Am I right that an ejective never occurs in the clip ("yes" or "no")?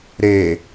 yes